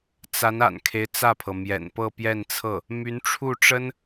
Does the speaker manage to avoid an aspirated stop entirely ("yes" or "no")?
no